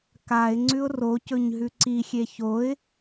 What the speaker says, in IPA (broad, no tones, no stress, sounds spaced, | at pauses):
k a ɪ̯ ŋ͡ǀ ʉ ʊ̯ r o c ɵ ɲ ɦ ʉ ǀ i xʲ e ç o ɪ̯